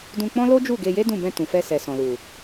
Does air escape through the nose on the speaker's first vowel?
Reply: yes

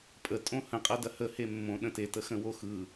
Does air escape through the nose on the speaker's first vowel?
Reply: no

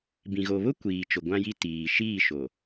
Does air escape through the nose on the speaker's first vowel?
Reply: yes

